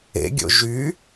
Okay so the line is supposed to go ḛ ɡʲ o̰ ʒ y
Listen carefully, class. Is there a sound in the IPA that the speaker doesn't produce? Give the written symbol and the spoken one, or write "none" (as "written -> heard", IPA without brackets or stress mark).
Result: none